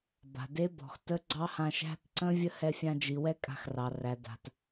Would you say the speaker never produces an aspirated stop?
yes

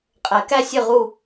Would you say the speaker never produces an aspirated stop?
yes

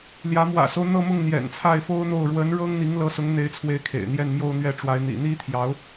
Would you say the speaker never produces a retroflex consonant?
no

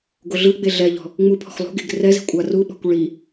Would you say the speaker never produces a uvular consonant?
yes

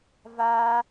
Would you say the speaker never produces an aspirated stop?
yes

